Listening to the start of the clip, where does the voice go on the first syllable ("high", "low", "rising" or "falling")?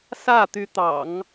falling